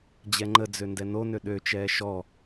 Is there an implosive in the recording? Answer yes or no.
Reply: yes